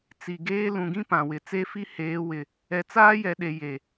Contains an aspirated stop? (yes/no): no